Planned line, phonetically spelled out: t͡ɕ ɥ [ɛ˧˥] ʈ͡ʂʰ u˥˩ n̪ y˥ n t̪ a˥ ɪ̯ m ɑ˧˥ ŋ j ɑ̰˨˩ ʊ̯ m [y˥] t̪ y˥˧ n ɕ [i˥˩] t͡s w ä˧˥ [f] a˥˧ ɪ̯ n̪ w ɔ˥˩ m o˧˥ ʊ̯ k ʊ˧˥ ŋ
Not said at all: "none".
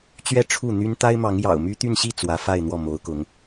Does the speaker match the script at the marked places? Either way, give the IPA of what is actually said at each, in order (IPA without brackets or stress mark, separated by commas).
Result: ɛ˥, y˥, i˥˩, f